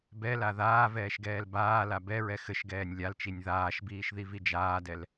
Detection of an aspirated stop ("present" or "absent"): absent